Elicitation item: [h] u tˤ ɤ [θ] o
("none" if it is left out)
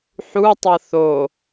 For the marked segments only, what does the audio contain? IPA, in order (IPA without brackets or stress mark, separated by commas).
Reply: ħ, θ